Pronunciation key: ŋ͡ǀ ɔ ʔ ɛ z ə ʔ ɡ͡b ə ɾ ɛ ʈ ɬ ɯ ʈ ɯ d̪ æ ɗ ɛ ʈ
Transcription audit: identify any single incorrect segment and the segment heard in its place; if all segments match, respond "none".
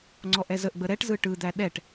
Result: ɬ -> z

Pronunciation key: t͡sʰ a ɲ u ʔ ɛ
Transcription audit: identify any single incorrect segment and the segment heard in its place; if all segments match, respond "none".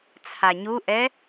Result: none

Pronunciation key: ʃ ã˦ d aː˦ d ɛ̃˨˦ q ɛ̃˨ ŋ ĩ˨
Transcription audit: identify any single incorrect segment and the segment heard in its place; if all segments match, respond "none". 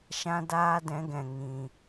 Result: q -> ɡ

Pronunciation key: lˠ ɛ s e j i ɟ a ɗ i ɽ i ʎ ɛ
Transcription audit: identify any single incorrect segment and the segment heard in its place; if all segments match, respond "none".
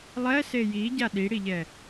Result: none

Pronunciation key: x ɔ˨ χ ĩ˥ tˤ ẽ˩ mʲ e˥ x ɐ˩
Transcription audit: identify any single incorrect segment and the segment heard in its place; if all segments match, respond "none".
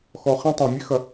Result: none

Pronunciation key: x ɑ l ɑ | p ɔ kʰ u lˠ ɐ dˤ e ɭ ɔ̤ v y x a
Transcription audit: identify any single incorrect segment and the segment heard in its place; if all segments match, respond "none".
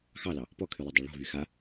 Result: u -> y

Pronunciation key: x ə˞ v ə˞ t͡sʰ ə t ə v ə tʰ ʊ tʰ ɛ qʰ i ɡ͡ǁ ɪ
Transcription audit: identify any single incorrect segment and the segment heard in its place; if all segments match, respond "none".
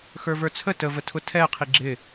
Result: none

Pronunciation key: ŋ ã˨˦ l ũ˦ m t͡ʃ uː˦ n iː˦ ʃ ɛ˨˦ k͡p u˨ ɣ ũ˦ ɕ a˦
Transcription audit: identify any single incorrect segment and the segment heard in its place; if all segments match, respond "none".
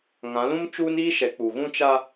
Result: ɕ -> t͡ʃ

